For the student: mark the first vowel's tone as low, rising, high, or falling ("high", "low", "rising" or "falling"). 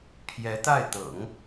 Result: rising